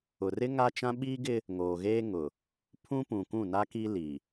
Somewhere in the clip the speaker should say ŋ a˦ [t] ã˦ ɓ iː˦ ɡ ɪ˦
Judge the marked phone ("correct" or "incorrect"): incorrect